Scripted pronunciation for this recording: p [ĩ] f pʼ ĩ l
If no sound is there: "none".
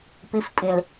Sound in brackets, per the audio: i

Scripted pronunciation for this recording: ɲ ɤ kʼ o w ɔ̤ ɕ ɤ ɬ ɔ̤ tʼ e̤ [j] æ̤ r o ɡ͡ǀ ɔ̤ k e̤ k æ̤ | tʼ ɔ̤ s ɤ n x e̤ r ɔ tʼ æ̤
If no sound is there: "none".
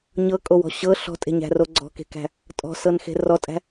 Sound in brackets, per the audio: ɲ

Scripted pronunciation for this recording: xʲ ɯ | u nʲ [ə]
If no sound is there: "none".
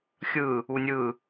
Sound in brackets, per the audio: ɯ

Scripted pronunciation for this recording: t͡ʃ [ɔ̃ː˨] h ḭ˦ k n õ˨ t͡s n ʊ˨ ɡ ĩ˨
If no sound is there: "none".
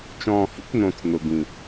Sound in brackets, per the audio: ɔ̃ː˨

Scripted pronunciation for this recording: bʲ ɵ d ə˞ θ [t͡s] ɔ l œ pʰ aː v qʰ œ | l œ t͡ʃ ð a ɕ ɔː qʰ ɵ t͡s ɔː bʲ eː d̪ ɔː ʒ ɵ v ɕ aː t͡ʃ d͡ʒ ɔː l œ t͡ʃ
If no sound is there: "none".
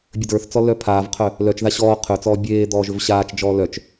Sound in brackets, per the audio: t͡s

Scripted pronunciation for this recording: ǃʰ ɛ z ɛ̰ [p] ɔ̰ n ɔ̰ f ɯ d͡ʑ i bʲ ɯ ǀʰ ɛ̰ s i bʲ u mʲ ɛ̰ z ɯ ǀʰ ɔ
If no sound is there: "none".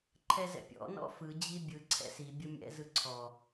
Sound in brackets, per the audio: pʲ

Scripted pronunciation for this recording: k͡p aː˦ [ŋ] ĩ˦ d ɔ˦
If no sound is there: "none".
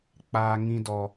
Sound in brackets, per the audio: ŋ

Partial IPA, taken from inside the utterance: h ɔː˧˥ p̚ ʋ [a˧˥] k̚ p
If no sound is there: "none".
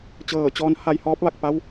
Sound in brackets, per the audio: a˧˩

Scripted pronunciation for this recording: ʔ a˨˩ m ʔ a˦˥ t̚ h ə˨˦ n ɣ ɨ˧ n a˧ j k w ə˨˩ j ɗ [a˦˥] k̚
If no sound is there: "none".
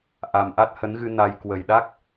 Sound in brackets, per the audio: a˦˥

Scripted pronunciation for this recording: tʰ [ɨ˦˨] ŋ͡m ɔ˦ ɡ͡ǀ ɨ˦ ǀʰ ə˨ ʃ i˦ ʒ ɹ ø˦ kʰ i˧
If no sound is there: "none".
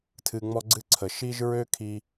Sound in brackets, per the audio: ɨ˧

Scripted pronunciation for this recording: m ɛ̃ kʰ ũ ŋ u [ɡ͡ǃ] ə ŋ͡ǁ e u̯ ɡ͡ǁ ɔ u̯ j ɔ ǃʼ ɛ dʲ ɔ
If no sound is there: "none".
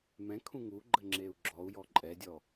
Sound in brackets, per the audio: ɡ͡ǃ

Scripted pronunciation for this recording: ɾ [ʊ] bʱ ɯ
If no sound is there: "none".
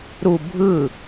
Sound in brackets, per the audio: u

